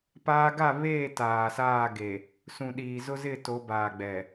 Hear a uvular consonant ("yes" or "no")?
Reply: no